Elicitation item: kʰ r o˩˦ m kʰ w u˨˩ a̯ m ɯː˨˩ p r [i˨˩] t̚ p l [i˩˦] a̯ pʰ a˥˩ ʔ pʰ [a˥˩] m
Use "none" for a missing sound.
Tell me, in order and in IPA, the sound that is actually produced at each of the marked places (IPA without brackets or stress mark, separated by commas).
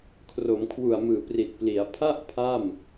i˨˩, i˩˦, a˥˩